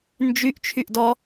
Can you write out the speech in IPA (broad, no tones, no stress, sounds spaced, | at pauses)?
n d͡ʒ y ʔ t͡ʃʰ y ʔ d ɔ